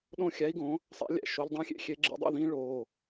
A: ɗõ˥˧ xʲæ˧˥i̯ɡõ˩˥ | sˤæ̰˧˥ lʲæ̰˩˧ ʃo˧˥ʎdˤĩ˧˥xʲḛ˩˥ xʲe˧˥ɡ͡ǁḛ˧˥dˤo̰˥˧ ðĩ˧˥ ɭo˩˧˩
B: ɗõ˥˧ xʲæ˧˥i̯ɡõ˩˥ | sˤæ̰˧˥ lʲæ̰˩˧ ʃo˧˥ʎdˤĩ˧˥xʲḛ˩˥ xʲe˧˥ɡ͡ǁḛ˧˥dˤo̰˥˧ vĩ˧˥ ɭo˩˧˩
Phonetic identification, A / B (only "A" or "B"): A